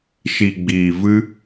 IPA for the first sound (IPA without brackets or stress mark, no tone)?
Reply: ʃ